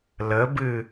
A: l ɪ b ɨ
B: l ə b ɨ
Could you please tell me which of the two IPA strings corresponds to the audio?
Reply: B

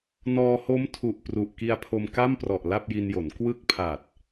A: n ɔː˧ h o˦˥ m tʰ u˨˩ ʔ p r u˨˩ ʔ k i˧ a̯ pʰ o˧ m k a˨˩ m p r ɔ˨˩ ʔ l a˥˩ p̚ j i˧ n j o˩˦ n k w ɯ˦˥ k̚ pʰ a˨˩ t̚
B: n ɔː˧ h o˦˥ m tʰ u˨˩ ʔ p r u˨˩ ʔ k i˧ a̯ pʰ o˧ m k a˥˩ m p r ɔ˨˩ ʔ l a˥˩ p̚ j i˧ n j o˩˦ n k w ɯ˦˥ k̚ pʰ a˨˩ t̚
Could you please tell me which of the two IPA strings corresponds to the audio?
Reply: B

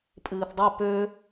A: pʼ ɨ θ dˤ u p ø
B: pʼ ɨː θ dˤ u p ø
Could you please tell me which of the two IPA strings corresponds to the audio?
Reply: B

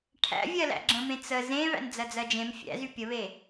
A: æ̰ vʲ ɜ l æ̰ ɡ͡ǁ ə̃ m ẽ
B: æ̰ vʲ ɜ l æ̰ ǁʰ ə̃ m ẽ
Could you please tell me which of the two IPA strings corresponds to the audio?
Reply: A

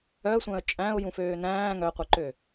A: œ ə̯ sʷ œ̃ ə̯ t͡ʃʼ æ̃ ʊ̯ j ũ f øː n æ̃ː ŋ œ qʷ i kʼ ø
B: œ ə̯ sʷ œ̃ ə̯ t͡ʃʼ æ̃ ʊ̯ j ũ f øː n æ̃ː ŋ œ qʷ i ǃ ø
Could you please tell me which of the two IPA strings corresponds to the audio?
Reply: B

